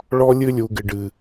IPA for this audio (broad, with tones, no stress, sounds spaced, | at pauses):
ɭ ɔ˦ lʲ ɨ˦ lʲ u˨ ɡ ɪ˨ ɖ ɨ˨